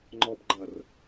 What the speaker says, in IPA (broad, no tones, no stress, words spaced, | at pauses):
ŋ͡ǃɔb ɡ͡ǃɐr